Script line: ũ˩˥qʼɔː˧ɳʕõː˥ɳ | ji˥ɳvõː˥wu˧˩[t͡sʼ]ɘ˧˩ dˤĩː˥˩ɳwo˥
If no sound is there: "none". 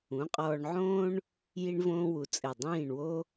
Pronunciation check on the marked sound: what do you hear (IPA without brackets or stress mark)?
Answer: t͡sʼ